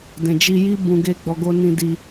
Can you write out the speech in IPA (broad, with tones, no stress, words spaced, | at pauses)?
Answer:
dɛ̃˨d͡ʒi˧ji˦ bũ˧ɡe˦ɡ͡bɔ˧ ɡo˧nĩ˧di˧